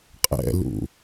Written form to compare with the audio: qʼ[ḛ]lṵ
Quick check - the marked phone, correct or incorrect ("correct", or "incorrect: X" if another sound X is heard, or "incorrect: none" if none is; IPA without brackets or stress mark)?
incorrect: ɛ̰